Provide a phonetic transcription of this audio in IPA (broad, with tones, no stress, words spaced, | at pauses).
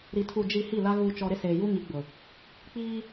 ɾi˨ tʰu˨d͡ʒi˨ hi˦˨la˦ ɣuː˨t͡ʃɔ˨ ɾɪ˦seː˨ju˦ŋi˨˦ ɡ͡bʊ˨ | k͡piː˦